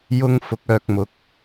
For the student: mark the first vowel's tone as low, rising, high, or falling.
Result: high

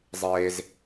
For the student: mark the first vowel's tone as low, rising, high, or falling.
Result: high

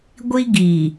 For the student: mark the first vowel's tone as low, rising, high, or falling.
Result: high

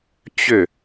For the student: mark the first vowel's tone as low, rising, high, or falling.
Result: falling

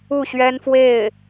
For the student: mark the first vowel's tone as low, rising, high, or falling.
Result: falling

